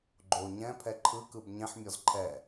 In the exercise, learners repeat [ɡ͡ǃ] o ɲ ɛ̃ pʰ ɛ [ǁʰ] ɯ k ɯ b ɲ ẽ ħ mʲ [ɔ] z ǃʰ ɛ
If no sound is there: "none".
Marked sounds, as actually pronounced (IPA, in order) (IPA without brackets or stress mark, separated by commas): ɡ͡ǃ, ǃʰ, ɔ